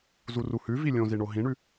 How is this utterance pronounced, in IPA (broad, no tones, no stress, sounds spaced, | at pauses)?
z u r u h ʉ v i lʲ õ z i ɳ o ɦ ĩ ɳ ʉ